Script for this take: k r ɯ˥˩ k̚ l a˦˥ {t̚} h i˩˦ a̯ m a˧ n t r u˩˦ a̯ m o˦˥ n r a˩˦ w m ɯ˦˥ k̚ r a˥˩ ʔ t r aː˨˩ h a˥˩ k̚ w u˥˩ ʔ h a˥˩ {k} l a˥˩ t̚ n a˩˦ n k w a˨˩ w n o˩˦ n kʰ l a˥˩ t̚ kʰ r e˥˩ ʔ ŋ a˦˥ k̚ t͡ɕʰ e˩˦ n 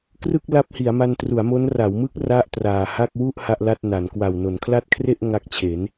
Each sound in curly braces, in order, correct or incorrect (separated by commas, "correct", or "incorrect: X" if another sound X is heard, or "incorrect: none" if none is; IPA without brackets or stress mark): incorrect: p̚, incorrect: ʔ